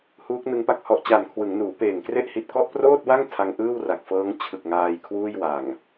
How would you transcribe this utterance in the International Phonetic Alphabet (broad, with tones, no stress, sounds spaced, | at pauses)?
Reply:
h uː˦˥ k̚ n ɯ˦˥ ŋ p a˨˩ k̚ h ɔ˨˩ ʔ t͡ɕ a˨˩ n kʰ w ɯ˩˦ ŋ n uː˩˦ p eː˨˩ ŋ k r e˥˩ ʔ h i˨˩ t̚ k ɔ˥˩ ʔ p r oː˥˩ t̚ w a˥˩ ŋ tʰ a˧ ŋ ʔ ɯː˥˩ w r a˨˩ k̚ f ɤː˦˥ ŋ t͡ɕʰ ɯ˨˩ k̚ ŋ aː˧ j kʰ w uː˥˩ j w a˨˩ ŋ